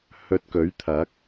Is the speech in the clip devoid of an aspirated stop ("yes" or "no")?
no